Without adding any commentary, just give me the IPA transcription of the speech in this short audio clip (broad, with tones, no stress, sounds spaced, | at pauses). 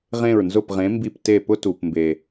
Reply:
ʁ ẽ˧˩ ɹ n z ʊ˧˩ p ʁ ẽ˩˧ m b i˧˩ p t e˧˩ p ʊ˦ t u˩ p m b e˩